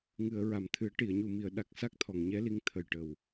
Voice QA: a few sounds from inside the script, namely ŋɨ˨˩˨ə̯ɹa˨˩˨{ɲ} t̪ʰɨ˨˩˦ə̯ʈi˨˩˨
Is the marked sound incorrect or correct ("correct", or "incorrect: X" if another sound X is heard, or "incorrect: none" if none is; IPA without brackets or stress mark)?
incorrect: m